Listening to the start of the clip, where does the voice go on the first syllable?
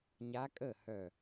rising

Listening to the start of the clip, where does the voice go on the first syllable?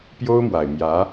high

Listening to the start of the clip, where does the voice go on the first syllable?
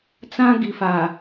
high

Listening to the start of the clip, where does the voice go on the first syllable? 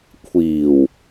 low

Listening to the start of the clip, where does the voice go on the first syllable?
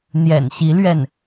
low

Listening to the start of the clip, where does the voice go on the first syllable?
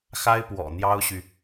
high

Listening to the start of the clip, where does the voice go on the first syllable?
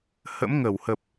rising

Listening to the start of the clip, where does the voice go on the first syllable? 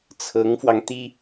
rising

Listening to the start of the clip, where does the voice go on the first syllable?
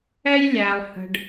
high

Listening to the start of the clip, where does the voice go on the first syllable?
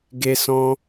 high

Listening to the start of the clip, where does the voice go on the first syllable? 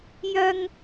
high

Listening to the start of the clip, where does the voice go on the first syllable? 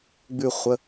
falling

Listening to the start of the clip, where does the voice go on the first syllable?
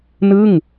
falling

